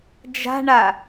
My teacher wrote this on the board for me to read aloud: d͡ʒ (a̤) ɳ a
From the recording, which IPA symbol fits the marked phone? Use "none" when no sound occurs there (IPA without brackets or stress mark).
a̤